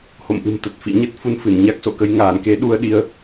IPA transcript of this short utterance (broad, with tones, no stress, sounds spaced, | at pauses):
h o̰˧˨ m ʔ ɨ̤˨˩ m t̪ ə˨˩ t̚ f ḭ˧˨ ɲ ə˦˥ t̚ f u˨˦ n f ɨ˧˩ n ɲ a˦˥ k̚ s o̰˧˨ k ə˨˦ j ŋ aː˧˩ n k e˨˦ ɗ u˧ ə̯ ɗ i˧ ə̯